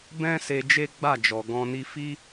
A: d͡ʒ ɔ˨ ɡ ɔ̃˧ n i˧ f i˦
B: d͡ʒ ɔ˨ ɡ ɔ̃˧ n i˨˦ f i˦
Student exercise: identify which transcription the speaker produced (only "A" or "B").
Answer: A